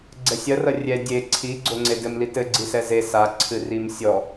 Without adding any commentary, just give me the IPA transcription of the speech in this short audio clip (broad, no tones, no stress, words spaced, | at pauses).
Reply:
ɡ͡ǀɛsʲɐrɐ rʲɛ dʲe ǀʰiɡ͡ǀoŋ͡ǀe dɘmlit ɘɡ͡ǀisɛ ze sa ǀʰɨrim sʲɔ